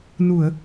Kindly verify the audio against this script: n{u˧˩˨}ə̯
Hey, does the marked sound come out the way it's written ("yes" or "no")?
yes